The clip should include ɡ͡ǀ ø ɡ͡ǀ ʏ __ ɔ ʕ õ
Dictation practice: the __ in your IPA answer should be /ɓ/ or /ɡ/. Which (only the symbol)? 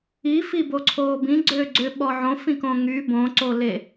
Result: ɓ